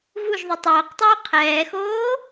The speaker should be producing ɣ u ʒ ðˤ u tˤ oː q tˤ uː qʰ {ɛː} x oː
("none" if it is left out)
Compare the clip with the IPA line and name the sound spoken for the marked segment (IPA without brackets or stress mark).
ɛː